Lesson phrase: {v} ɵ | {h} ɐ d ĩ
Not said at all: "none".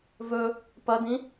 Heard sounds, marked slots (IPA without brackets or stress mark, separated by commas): v, p